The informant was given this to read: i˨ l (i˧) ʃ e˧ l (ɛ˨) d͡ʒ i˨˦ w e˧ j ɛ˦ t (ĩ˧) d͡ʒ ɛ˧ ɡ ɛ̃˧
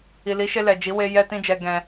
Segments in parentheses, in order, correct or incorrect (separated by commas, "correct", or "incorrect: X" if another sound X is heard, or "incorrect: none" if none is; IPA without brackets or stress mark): incorrect: i˨˦, correct, incorrect: ĩ˦